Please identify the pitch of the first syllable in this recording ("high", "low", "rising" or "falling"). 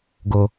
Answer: high